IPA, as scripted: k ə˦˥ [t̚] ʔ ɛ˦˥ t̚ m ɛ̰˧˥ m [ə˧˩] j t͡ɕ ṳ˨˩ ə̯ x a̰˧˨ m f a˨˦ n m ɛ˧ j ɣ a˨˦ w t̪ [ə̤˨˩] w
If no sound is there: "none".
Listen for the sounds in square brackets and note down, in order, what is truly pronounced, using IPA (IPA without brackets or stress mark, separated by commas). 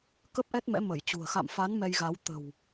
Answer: p̚, ə˧˩, ə̤˨˩